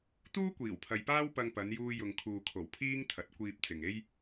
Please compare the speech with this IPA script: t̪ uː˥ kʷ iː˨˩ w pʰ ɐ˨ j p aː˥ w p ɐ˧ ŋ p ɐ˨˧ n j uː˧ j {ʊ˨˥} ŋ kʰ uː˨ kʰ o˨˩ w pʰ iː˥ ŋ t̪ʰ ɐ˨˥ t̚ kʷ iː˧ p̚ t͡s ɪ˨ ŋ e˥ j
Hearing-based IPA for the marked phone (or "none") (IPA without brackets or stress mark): ʊ˨